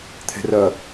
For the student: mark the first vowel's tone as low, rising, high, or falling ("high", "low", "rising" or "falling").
low